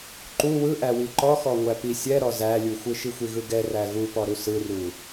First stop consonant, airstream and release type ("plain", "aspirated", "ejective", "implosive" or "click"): click